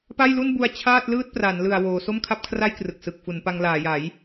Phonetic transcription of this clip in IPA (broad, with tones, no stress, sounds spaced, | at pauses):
p a˥˩ j l u˥˩ n b u˧ a̯ t͡ɕʰ aː˥˩ t̚ l ɯː˥˩ t̚ p r a˩˦ n l ɯ˨˩ a̯ w oː˩˦ s o˥˩ m kʰ a˥˩ p̚ kʰ r a˥˩ j k r ɯ˨˩ k̚ s ɯ˨˩ k̚ f u˩˦ n p a˧ ŋ l aː˩˦ j a˩˦ j